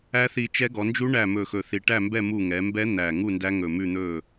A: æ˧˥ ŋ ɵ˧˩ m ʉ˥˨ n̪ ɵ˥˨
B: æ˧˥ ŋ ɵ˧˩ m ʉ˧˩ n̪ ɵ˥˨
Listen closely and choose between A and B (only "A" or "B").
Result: A